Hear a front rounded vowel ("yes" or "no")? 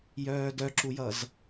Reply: yes